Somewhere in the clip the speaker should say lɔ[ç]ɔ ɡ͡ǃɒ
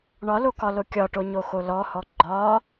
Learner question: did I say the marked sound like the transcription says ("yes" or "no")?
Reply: no